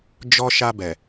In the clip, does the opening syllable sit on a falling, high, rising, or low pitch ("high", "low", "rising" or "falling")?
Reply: high